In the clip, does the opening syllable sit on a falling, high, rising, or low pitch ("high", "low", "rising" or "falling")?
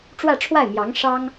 falling